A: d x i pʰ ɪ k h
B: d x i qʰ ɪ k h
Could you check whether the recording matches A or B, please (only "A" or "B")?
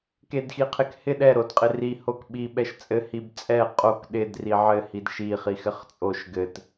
B